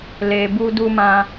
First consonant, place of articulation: alveolar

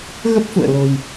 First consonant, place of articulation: velar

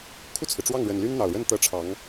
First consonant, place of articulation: velar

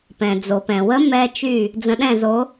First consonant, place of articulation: labial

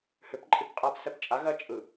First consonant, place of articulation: glottal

